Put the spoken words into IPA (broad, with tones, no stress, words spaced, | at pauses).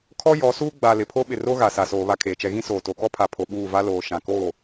kʰɔ˦ jɔ˨˦suː˦ ɡ͡ba˨ lɪ˨pʰo˦ ɓɪ˨ro˦ ɣa˨sa˨soː˨ βa˦kʰeː˨t͡ʃɛ˦ ɣĩ˦soː˨to˨ kɔ˦pʰa˨pʰo˨ ɓuː˦˨ va˦loː˨ ʃã˨koː˦˨